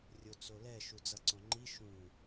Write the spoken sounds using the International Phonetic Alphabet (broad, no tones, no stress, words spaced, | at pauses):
rʲot͡solɛ ʃud͡zʌǀõŋ͡ǃi ʃũ